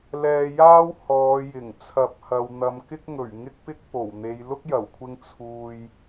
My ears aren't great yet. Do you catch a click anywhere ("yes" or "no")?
no